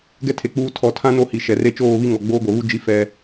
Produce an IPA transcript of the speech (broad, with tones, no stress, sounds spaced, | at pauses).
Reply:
ɡ ɛ˦ tʰ e˨ k͡p uː˦ tʰ ɔ˨ tʰ ã˦ n o˦ h i˨ ʃ ɛ˨ r e˦ t͡ʃ oː˦˨ β i˦ ŋ ɔ˨ ɡ͡b oː˦ ɡʷ ɛ˨ β u˦ d͡ʒ i˦ f ɛ˦